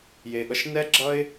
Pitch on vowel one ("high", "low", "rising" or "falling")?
low